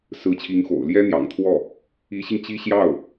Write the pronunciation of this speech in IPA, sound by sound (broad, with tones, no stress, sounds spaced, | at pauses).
s ɹ̩˧˥ t͡ɕʰ i˧˥ ŋ x o̰˨˩ ʊ̯ l j ɛ˥ n̪ j ɑ̰˨˩ ŋ t̪ʰ w ɔ˥˩ | i˧˥ ɕ i˧ ŋ t͡ɕ i˥ ɕ j ɑ˥˩ ʊ̯